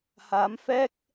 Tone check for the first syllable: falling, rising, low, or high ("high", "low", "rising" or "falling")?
rising